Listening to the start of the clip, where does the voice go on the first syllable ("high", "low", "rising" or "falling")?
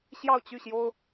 falling